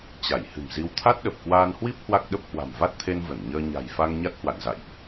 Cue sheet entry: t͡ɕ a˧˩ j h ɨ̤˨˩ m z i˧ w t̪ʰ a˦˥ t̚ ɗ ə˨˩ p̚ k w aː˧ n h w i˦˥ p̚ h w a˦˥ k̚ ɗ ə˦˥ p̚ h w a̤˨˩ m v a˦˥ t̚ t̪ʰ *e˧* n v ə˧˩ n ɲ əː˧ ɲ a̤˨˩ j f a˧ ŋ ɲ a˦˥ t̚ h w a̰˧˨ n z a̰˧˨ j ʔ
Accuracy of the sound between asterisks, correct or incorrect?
correct